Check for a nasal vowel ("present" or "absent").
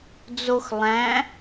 present